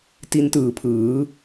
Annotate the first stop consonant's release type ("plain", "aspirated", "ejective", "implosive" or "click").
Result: plain